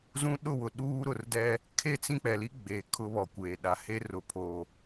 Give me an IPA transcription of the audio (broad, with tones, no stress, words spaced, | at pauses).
zũ˦ ɗʊ˦˨wʊ˨ ɗuː˦ ɾʊ˨rdɛ˦ | kʰe˦˨t͡sĩ˦k͡pɛ˨li˦ ɡ͡be˨ kʰʊ˦βɔ˨kʷeː˨ ɗa˨he˦rʊ˨pʰo˨